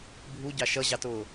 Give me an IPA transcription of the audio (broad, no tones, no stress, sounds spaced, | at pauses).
bʱ u ɟ ɑ ʃ ʌ ʑ ɑ t ʊː